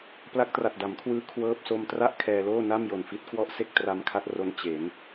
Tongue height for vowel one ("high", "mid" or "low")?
low